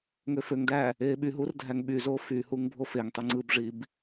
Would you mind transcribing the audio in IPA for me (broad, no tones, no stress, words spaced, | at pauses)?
ŋøføŋdæ | eːɓyɦur dʱæŋɓyzo fyhuŋ bʱofeŋtˤy ŋ͡ǀɯbʐib